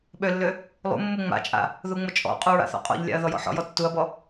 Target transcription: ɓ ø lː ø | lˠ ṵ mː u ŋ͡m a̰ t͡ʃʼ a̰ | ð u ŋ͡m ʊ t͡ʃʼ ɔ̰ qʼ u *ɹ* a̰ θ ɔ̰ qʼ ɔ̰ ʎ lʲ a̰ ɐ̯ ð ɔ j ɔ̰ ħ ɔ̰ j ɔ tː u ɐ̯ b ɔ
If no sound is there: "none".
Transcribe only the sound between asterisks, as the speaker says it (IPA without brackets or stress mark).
ɹ